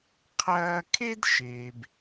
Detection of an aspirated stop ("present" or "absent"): present